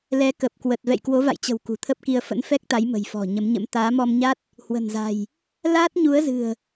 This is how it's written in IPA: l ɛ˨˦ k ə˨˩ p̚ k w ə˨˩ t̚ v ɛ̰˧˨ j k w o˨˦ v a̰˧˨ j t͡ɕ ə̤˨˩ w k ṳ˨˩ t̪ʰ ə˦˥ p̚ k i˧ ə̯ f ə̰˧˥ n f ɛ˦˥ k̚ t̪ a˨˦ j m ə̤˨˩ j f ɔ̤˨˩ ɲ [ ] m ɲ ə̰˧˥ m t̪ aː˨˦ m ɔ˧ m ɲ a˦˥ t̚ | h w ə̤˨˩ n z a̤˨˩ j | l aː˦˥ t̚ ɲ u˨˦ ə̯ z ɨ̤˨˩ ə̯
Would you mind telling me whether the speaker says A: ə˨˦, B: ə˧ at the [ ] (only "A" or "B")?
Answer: A